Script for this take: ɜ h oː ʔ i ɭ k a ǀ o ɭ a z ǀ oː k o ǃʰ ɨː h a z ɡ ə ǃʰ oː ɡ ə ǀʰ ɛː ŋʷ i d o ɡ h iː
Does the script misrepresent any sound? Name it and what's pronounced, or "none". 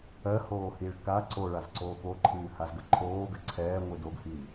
ʔ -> h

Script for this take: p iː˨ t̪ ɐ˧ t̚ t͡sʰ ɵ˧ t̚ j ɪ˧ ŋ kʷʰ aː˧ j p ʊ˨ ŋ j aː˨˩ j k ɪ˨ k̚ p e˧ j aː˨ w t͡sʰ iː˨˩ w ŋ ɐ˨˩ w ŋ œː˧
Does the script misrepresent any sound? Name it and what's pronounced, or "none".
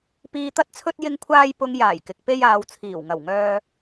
none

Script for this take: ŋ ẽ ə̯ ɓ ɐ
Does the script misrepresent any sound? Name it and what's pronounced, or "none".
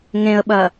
none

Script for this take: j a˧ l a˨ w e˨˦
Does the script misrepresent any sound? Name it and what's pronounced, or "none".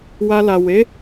j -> w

